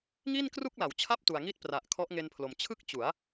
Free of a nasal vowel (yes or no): yes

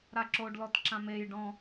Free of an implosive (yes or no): yes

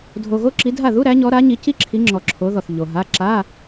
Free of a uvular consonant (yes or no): yes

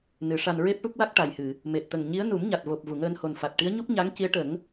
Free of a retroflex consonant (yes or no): no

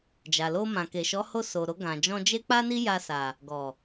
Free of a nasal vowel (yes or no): no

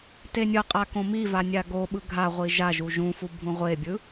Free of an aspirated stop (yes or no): yes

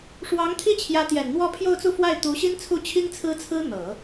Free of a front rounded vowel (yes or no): yes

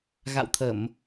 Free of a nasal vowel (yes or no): yes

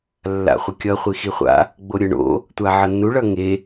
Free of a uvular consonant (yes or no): no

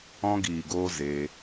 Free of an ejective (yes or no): yes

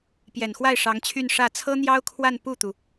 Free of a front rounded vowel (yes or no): no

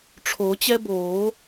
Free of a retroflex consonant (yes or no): no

